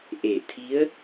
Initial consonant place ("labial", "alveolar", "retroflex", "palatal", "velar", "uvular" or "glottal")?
glottal